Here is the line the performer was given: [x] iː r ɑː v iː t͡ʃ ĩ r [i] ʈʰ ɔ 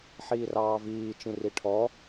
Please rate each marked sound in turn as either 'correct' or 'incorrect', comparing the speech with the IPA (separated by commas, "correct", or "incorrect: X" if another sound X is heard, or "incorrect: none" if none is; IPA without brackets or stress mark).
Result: incorrect: ħ, correct